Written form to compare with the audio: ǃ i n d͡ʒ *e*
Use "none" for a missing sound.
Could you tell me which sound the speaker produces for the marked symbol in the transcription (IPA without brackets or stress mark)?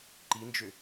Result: ø